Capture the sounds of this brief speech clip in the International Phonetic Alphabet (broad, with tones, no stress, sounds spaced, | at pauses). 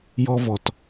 j ɔ˥ v ɔ˧ t